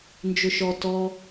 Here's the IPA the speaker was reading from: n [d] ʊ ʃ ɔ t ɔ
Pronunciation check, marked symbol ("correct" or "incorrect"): incorrect